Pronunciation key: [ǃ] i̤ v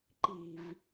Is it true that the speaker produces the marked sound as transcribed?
yes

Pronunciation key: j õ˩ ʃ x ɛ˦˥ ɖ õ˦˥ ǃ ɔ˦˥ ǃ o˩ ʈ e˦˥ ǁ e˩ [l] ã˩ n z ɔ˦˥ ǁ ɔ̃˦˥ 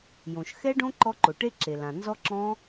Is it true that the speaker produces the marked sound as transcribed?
yes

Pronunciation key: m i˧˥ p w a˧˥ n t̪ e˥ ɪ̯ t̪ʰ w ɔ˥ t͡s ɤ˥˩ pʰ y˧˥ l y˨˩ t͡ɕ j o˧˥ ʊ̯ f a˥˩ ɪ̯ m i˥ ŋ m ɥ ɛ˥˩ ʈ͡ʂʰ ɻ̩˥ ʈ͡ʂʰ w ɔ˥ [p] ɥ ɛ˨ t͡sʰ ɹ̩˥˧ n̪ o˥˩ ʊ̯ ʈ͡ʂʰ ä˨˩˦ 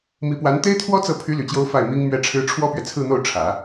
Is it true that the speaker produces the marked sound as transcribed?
yes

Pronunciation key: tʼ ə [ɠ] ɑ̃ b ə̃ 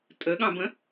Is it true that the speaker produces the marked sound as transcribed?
yes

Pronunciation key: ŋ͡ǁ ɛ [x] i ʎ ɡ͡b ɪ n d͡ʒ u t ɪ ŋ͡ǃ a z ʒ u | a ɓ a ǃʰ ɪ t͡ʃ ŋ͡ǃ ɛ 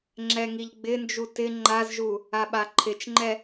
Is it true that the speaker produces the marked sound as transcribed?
no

